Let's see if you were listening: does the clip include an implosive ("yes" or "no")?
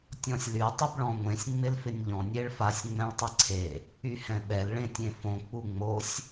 yes